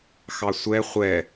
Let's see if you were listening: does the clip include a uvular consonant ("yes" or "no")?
yes